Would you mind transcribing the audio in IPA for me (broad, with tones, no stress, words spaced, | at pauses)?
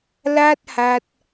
la˥˩t̚ ha˦˥t̚